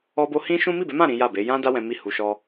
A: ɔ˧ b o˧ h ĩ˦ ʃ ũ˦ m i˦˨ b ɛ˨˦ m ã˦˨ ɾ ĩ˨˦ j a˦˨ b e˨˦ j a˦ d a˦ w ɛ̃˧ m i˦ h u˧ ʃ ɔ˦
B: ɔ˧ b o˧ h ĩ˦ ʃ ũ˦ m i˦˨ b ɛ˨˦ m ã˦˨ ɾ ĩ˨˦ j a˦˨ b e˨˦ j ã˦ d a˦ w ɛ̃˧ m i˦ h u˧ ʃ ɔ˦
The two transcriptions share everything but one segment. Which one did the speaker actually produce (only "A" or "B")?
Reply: B